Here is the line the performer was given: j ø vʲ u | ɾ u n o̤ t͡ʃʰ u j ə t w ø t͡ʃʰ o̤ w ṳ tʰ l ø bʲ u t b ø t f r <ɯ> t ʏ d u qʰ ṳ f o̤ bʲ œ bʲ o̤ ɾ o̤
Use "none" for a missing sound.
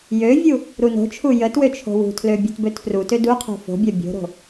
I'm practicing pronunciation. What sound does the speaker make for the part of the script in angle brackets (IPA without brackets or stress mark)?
u